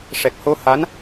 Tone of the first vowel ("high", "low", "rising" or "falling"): low